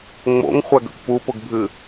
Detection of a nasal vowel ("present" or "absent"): absent